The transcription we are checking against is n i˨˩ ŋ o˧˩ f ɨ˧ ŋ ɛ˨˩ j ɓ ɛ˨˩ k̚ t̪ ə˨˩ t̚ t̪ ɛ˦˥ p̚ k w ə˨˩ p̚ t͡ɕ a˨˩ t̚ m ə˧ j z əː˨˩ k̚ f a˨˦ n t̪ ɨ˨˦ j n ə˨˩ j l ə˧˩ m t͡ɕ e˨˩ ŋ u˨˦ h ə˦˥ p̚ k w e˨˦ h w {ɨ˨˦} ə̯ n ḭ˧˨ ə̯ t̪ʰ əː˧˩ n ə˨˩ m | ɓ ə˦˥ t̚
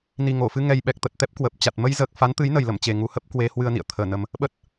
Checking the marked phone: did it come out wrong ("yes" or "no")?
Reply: yes